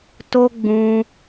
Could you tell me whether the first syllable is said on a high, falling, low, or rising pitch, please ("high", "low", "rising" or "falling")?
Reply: high